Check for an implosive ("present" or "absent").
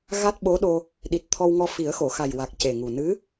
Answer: present